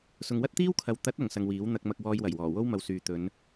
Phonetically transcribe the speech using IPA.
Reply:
sʊ˨ŋwɐ˥t̚t̪iː˥wkʰɐ˨w t̪ɐ˨˥t̚ ɐ˨ŋsɐ˧ŋwiː˨˥w n̪ɐ˧k̚mɐ˧k̚ wɔː˧jwɐ˨˩jwɔː˨˩ wo˥wmɐ˨wsyː˨ t̪ɵ˨˧n

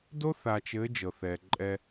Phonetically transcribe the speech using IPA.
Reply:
do˦θa˨t͡ʃɘ˨˦ d͡ʒɤ˨θɛː˨ǃʼɛ˦

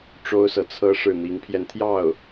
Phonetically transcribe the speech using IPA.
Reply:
ʈ͡ʂo˥ʊ̯sɤ˨t͡sʰɤ˥ ʂɻ̩˥˩ n̪i˧˥ŋpʰjɛ˧nt̪ʰjɑ˥˩ʊ̯

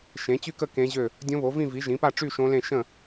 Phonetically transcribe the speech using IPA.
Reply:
ʃẽ˩˥t͡ɕy˥˨kə˥˨ kẽ˧˥ʑø˥˨ | dʲõ˧˥βo˩˥vĩ˥˨ vi˩˥ʒĩ˩˥pa˥˨ ʈ͡ʂy˥˨ʃõ˧˥lẽ˥˨ ʃə̃˥˨

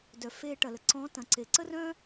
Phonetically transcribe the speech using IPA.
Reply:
dœ˩ feː˧ ʈɐ˩lə˩ ǀɔ̃˧˥tɐ̃˩˧ ǀe˩ǀə˥rœ̃˥

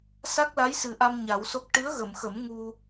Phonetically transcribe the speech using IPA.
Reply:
sa˦˥k̚la˧˥jsɨ˨˩ʔa˧m ɲa˨˩˦wso˦˥k̚ ʈɨ˧˥ə̯ɣə˨˩˨mxə˨˩˦m ŋu˧

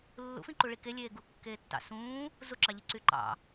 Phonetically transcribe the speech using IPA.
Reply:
lːṵfĩǃu ɭikelʲeː ɡukːeːtːɑ̰ sũː | zuǁɑʎi ǀyǃɑ̰

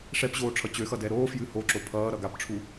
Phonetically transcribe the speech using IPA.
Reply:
ʂɛpʑoː ʈ͡ʂʰʌt͡ɕøxʌ dɛɾoːfjɨ hoǁo pʰʌː ɾʌɡapʈ͡ʂʰu

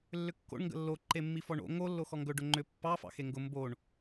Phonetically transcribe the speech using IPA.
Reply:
lːʏkːo̰ɳ ŋɡə̰lːo ǃemːifɔɳo̰ ŋo lːoxɔŋɡɵ ɖʊŋ͡ǃʏ pːɑ fɑ̰xeŋɡʊ mboɳ

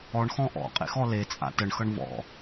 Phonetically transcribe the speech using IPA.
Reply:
ɔɳxɔ̃ ʔɔ̰qʼḛxɔ let͡sʼa̰ təɳxʌɳ vɔ̰

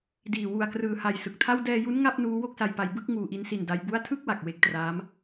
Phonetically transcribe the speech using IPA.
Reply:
diː˨˩ wu˨˩a̯krɯː˨˩ha˨˩j sɯ˨˩k̚tʰa˥˩w dɛː˧ju˦˥n ŋa˥˩p̚nuː˦˥ wo˥˩k̚sa˧jpa˧j bɯ˥˩k̚ ŋuː˧ʔi˦˥nsi˧n da˦˥jbu˥˩a̯ tʰɯ˥˩k̚wa˨˩k̚ we˦˥k̚traː˦˥m

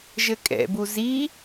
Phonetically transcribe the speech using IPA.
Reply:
ʒɘkʼɛ̰bu zi

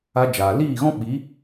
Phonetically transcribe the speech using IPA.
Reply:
a˧d͡ʒaː˨liː˦˨ɣɔ̃˦ ɓi˨˦

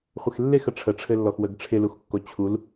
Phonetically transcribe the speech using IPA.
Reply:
χʷɪxlːexə ʈ͡ʂʰəʈ͡ʂʰɘlːɔx wəɡʈ͡ʂʰɪluxkːo t͡ɕʰul

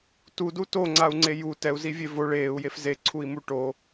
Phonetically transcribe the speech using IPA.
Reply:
tudu toŋ͡ǀau̯ŋ͡ǀe ju tɛu̯zivʲe vo ɭeːu̯jef zeǀʰui̯mu ʈo

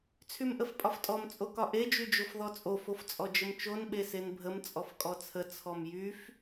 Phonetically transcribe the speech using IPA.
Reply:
t͡sʰymʔəfpʼɒftʼɔm t͡sʼokɒʔe d͡ʒyd͡ʒofðɔt͡sʼo foft͡sʼɔd͡ʒəmt͡ʃon ɓesenbʱəm t͡sʼɔfkʼɔt͡sʰə t͡sʰɔmjyf

